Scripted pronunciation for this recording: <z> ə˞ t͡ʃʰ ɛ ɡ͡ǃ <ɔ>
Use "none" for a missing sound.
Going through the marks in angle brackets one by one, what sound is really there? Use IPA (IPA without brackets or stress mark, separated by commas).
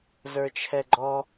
z, ɔ